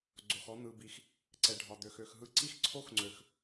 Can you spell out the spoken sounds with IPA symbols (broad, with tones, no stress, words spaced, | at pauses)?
ɡ͡ǀo˨xɔ˦ n̪ɯ˨bi˨x | ǀɛ˨ɖʱɒ˨d̪ø˨xø˨x ɦɯ˦ ǀi˦x ǀʰo˦xŋ͡ǀø˨x